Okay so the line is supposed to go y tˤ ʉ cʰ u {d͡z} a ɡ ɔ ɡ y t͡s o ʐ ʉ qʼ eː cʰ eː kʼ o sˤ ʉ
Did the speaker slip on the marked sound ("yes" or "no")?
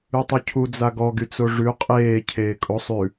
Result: no